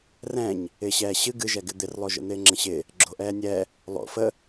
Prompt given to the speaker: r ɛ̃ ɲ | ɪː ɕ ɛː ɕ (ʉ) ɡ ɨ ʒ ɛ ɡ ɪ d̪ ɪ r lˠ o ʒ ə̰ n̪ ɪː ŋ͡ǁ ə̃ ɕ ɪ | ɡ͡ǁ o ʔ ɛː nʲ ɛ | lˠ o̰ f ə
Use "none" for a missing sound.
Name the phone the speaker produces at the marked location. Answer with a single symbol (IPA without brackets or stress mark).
ɨ